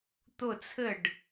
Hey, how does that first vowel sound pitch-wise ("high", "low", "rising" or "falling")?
falling